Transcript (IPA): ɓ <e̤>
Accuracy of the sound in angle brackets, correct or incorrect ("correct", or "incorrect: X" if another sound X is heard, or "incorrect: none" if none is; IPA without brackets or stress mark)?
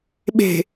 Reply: correct